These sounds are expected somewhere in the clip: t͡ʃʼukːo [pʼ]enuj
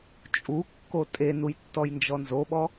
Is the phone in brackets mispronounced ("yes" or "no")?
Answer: yes